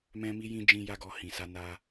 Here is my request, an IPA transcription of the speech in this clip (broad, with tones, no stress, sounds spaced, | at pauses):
m ɛ̃˦ m i˦ j ĩ˦ d͡ʒ ĩ˦ j a˦ ɡ ɔ˧ h ĩ˨ s a˧ n a˧